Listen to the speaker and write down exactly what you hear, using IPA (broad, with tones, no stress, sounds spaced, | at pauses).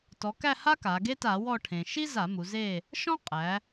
t ɔ˩˧ k æ˦˨ h a˥ k a˩˧ ɡ e˥ t a˧˩˧ w ɔ˦˨ ʈʰ ẽ˩ ʃ i˥ z a˧˩˧ m u˩˧ z e˦˨ | ʃ ɔ̃˥ qʼ æ˩˧